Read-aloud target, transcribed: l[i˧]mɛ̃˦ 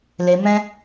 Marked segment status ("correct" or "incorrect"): incorrect